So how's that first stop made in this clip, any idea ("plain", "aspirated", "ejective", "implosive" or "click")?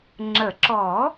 click